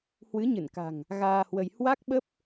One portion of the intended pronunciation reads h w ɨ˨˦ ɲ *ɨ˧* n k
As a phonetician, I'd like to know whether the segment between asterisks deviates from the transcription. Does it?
yes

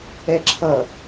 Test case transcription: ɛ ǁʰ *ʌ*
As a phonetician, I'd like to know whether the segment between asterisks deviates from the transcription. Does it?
no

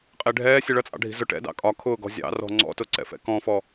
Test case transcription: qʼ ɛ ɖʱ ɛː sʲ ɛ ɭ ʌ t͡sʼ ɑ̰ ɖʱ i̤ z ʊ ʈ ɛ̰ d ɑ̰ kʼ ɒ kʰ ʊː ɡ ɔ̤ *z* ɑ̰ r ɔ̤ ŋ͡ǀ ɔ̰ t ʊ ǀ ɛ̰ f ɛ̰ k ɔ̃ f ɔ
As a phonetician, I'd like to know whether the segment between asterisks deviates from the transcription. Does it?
yes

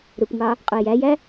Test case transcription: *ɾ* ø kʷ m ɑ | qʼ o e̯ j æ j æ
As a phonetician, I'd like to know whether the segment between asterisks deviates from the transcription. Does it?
no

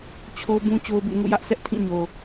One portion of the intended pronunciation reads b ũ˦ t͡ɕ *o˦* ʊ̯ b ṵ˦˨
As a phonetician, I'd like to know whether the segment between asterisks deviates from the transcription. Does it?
no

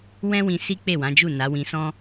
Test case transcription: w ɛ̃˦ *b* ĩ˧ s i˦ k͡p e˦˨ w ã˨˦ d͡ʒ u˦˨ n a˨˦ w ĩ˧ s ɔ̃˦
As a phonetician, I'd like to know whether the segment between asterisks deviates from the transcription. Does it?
yes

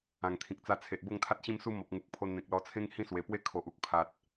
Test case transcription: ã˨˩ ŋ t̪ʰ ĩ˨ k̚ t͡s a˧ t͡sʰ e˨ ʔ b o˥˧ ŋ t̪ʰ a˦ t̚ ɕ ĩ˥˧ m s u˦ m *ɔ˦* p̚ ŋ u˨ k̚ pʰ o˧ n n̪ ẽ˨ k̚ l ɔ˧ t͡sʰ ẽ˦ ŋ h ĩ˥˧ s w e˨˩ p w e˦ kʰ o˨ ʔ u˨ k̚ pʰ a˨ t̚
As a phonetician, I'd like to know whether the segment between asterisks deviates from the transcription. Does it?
yes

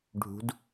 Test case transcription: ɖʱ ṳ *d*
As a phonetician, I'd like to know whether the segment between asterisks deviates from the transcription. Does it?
no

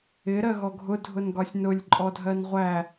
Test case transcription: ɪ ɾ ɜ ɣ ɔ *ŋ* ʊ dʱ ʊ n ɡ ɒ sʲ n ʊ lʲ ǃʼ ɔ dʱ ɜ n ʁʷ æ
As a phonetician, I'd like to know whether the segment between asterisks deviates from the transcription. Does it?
yes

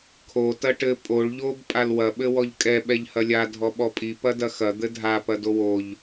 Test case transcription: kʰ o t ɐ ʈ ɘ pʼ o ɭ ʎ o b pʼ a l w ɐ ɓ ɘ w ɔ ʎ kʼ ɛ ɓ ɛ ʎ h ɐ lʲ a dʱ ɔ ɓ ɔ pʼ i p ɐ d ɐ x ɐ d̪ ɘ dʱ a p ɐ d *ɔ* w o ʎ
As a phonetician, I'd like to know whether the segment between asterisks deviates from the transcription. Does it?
yes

